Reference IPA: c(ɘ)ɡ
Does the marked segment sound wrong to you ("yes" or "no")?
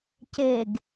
yes